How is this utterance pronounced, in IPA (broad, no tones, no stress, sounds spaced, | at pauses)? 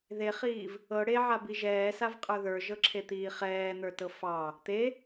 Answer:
ð e χ iː v | ɤ ɽ e ʕ a b i ʒ ɛː s a v qʼ ə˞ ð ə˞ ʒ ɤ ǁʰ e t̪ iː χ ɛː n̪ ə˞ t ɤ f ɑ | t̪ e